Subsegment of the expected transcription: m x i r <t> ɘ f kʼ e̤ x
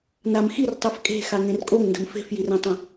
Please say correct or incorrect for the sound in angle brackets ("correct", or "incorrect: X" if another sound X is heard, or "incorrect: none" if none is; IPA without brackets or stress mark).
incorrect: tˤ